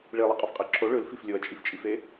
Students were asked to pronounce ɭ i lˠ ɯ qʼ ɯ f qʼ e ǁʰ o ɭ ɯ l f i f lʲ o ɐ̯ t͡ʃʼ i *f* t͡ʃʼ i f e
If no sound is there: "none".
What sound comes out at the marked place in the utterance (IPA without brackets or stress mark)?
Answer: f